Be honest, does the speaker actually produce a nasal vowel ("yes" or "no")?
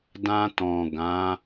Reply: yes